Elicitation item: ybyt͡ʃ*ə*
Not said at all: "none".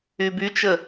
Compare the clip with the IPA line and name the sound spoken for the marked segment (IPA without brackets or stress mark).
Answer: ə